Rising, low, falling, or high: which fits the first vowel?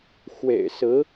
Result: low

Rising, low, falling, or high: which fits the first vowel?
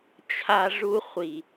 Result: high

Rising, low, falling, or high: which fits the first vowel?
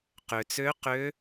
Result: low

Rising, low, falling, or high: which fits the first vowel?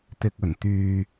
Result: low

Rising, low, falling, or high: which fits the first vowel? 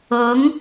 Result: rising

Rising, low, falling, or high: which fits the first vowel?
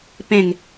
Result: falling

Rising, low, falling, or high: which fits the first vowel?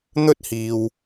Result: high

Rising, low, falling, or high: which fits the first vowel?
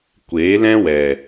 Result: rising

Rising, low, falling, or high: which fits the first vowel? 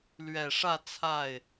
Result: low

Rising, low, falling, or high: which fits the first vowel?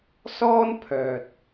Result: high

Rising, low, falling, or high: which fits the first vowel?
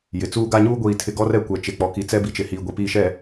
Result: low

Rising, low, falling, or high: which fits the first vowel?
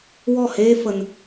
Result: falling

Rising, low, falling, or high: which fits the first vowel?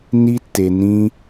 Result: high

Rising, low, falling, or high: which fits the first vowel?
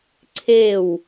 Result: falling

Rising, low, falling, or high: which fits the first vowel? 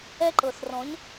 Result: high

